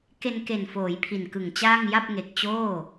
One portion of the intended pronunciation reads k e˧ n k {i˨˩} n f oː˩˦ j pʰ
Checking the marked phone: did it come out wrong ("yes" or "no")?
yes